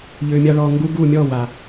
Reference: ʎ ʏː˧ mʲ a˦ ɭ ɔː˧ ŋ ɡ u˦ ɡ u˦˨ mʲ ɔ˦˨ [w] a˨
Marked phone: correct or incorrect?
correct